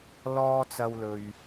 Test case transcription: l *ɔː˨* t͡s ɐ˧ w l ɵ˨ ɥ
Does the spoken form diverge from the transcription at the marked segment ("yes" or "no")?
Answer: yes